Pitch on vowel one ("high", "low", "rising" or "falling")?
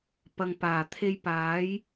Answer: low